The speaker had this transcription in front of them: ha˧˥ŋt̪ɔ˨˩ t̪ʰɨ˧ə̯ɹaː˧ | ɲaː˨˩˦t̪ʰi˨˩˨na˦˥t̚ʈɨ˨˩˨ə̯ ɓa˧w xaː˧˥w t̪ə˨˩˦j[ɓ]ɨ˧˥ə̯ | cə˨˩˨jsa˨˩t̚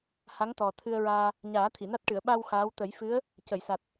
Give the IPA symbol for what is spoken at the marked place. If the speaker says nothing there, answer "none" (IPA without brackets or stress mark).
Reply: f